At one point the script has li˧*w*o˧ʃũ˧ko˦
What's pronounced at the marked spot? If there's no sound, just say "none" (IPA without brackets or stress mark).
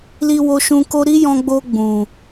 w